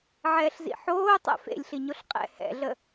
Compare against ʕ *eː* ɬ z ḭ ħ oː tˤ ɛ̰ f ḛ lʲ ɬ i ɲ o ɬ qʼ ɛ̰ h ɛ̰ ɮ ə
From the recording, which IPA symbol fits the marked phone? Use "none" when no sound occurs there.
ɛː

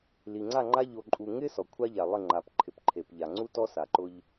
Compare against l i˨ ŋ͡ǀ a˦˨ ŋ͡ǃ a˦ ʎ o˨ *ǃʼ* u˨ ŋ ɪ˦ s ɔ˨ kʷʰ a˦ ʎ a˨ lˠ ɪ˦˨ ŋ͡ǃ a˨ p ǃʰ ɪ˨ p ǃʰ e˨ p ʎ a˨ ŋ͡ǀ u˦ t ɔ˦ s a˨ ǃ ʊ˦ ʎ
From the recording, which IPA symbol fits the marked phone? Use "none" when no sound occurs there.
ǃʼ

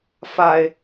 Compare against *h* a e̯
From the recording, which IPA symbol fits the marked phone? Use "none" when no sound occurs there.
f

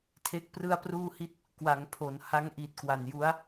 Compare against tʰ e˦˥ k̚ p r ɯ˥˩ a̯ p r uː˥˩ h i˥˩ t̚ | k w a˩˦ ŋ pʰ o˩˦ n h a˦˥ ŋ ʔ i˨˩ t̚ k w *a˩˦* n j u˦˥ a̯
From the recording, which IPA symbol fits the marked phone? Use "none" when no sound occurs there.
a˨˩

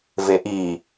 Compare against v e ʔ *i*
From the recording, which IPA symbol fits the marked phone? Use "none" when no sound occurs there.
i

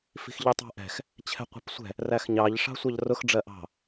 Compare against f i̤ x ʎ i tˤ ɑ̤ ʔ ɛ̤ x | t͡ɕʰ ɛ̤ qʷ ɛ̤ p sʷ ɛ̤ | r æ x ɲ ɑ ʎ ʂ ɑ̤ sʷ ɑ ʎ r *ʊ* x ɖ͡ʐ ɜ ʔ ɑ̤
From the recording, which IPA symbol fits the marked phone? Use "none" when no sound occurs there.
ʊ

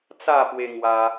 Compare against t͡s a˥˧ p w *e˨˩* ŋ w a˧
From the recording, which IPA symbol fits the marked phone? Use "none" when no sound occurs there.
e˧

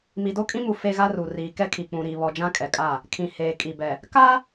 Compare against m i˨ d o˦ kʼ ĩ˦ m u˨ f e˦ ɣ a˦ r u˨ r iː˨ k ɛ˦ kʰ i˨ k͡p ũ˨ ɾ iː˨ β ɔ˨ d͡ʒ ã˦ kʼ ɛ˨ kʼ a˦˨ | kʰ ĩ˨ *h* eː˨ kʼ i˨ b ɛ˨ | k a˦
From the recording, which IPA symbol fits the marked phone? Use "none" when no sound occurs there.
h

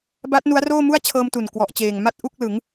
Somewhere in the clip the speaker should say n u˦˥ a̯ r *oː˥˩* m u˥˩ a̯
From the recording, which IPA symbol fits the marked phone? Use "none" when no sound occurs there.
oː˥˩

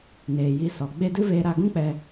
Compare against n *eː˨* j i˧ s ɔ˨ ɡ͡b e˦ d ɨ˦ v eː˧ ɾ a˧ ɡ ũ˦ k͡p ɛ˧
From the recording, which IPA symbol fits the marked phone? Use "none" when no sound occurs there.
eː˨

